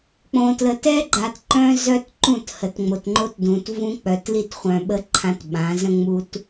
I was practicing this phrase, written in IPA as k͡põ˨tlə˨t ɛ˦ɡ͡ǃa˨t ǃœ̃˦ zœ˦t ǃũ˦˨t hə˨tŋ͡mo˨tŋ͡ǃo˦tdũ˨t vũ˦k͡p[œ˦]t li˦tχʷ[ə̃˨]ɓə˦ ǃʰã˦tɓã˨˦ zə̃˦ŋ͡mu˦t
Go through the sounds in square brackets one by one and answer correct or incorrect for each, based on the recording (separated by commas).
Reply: incorrect, incorrect